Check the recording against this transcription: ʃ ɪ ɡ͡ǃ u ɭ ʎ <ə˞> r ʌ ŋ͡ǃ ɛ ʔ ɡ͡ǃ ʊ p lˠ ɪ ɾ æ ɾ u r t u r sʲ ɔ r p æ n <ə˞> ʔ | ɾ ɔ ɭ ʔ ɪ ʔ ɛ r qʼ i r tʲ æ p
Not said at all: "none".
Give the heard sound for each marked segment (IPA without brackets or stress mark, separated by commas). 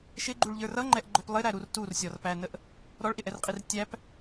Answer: ə˞, ə